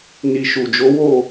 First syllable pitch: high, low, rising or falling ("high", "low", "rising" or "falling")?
low